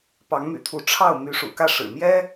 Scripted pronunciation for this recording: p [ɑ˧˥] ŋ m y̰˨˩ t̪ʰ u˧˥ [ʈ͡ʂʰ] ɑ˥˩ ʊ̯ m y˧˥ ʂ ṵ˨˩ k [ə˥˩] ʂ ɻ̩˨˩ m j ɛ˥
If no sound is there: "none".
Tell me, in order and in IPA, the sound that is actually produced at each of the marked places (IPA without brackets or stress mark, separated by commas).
ɑ˧˥, ʈ͡ʂʰ, ä˥˩